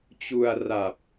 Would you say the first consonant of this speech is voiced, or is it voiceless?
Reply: voiceless